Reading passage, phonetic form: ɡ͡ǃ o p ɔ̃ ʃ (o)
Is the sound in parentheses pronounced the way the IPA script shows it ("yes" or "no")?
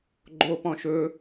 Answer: no